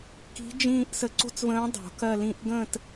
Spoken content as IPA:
k i̤˧˥ d͡ʒ ĩː˥˧ ʔ s ə˧˥ ǀ o̤˥˧ t͡s v ə̃ː˧˥ dˤ o̤˨˩˦ k ɜ˥˧ l ĩ˥˧ ʔ ɡ ə̃ː˥˧ t

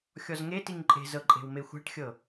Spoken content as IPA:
xʲ ɔ z ŋ e t i ŋ ǃʼ e̤ z ɤ ǃʼ e̤ w m e xʷ a̤ ʈ xʲ ɤ

